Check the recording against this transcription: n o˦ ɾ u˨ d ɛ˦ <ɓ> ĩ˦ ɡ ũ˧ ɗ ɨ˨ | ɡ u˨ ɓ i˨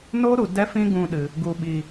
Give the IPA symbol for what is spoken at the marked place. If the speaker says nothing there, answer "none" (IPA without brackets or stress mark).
f